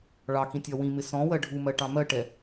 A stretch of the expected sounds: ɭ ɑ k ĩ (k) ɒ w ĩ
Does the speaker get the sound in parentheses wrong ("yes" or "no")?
yes